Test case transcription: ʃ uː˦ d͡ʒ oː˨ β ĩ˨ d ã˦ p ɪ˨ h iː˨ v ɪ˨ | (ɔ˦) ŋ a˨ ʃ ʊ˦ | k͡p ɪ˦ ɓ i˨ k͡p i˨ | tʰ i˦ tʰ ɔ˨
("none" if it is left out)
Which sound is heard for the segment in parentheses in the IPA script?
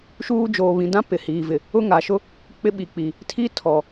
ʊ˦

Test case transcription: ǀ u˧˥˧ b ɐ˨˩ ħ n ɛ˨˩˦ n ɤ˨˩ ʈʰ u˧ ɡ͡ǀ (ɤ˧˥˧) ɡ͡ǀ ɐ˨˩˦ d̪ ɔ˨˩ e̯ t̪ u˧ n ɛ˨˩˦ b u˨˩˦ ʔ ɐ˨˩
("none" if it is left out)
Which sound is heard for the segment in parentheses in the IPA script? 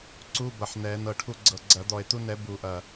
ɤ˨˩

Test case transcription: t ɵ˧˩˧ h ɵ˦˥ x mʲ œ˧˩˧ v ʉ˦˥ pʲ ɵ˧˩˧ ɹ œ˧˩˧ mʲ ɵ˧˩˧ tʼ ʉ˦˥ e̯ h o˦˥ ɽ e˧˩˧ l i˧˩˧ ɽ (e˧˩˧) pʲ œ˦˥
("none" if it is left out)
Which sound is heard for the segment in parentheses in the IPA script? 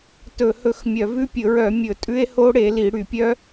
y˧˩˧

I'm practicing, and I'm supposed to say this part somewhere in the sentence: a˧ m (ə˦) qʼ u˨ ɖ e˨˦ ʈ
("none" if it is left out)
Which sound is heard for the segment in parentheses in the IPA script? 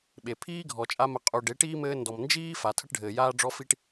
ə˨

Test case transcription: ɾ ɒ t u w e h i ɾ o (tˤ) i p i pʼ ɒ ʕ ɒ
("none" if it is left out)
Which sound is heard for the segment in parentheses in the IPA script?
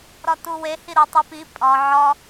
tˤ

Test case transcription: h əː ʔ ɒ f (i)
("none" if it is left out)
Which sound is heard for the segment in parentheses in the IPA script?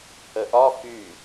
y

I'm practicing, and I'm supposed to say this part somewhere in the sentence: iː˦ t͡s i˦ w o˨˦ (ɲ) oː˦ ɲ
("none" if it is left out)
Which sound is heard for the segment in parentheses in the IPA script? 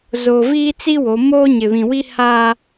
m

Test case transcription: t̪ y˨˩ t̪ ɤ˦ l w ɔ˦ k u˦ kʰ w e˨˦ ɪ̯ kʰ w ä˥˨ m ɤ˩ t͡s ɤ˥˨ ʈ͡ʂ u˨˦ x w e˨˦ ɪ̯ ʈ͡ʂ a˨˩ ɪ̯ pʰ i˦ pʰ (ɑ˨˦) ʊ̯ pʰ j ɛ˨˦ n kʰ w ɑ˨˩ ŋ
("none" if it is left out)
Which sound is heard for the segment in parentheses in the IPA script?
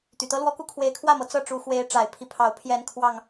ɑ˨˦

